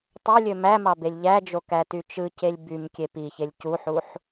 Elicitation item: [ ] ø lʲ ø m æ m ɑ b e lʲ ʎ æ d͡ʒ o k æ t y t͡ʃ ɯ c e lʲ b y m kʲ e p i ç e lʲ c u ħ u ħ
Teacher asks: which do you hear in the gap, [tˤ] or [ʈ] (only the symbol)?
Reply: tˤ